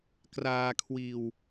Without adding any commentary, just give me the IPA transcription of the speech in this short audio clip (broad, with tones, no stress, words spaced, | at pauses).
kraː˧kʰwiː˧w